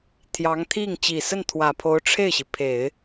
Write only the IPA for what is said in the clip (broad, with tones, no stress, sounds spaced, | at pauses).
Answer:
t̪ʰ j ɑ˧˥ ŋ t̪ʰ i˥˩ ŋ t͡ɕ i˨˩ s ə˥˩ n t̪ʰ w ä˨˩ pʰ o˧˥ ʊ̯ ʈ͡ʂʰ e˥˩ ɪ̯ ɕ i˩ pʰ e˨˩˦ ɪ̯